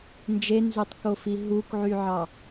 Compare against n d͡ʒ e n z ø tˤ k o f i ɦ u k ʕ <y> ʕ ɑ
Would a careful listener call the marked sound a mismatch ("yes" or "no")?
no